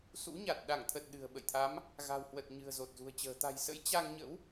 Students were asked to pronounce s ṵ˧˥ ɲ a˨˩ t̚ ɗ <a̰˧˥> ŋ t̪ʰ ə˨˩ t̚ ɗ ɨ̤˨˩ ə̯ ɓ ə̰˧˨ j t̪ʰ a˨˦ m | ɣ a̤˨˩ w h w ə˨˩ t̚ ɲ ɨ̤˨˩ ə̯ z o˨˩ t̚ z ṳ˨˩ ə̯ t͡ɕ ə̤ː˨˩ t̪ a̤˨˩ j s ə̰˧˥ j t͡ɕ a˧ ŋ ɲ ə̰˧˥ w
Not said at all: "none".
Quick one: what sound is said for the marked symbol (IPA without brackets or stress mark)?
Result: a˧˩